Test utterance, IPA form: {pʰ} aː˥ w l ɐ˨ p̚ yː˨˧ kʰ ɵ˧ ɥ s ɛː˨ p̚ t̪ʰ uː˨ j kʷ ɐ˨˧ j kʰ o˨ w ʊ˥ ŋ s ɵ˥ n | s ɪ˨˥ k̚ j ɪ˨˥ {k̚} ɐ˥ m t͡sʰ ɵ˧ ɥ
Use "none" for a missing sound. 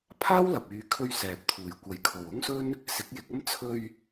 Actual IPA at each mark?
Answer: pʰ, k̚

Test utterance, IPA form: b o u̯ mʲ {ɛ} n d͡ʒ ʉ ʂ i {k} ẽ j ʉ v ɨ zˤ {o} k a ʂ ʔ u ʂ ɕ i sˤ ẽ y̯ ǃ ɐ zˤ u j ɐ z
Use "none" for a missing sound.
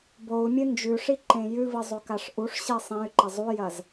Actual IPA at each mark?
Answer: ɨ, ǃ, o

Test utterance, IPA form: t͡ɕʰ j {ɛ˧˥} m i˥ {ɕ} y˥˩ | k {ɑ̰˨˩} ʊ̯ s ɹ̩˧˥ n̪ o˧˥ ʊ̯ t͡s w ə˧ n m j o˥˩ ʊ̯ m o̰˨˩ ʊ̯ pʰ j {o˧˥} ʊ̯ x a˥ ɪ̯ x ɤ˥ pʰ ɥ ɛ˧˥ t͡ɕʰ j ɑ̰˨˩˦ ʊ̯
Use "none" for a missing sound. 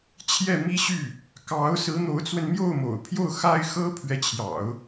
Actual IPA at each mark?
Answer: ɛ˥˩, ɕ, ɑ˧˥, o˥˩

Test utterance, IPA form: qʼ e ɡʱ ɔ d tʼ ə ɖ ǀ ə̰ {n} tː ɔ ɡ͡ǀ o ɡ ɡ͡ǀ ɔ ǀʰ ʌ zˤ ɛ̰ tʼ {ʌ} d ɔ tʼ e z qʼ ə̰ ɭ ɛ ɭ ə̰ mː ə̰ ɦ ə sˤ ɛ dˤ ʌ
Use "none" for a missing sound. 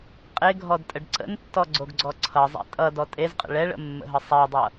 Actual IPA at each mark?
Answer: n, ʌ

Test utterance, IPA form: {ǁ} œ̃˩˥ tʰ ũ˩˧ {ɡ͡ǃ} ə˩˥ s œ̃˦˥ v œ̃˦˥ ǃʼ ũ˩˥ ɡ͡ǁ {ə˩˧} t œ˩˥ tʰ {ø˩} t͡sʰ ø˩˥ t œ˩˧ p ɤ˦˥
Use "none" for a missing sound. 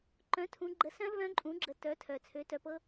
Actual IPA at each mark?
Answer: ǃ, ɡ͡ǃ, ə˩˧, œ˩

